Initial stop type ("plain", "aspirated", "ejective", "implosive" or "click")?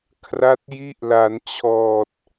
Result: aspirated